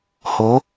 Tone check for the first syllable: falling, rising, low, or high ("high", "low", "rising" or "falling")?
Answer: rising